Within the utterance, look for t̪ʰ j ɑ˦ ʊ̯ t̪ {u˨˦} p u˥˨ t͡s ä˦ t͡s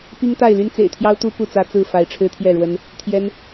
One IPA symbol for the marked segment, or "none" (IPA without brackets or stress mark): u˦